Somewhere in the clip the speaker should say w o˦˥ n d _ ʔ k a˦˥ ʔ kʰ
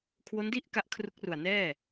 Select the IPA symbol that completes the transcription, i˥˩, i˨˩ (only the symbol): i˥˩